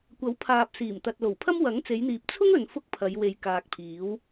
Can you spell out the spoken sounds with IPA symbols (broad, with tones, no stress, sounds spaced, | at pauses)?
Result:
kʷ ɐ˨˥ w pʰ aː˨ p̚ s iː˨˩ m t̪ ɐ˨ t̚ l o˨˩ w pʰ ɐ˥ m w ɐ˨˥ ŋ t͡s e˨˧ j n̪ iː˨ p̚ t͡sʰ ʊ˥ ŋ ɵ˨ n f ʊ˥ k̚ pʰ ɐ˨˧ j w e˨ j k aː˨ k̚ pʰ iː˨˥ w